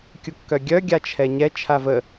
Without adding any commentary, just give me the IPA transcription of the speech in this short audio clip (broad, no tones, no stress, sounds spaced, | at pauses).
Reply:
kʲ u kː œ ɡʲ œ ɡʲ a t͡ʃʰ ɛ ɲ ɛ t͡ʃʰ a v ə